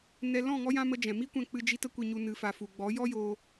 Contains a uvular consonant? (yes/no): no